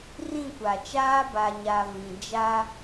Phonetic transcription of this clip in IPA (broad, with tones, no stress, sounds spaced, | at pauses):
r ĩ˦˨ kʷ a˨ t͡ʃ aː˦ b a˨ ɲ a˨ v ĩ˨ d͡ʒ a˦